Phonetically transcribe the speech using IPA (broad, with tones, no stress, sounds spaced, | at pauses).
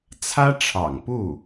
t͡sʰ ä˥ ʈ͡ʂʰ ɑ̰˨˩ ŋ p u˥˩